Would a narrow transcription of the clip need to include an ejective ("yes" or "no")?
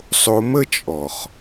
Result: yes